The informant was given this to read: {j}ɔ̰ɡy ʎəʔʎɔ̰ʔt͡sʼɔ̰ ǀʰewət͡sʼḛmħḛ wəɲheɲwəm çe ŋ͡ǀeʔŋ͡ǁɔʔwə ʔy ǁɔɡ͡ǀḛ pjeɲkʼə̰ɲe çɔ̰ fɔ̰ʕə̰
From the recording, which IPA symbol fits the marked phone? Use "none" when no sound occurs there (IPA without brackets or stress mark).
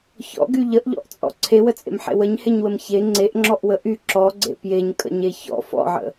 ç